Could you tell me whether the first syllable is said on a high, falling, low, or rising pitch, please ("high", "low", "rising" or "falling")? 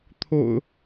low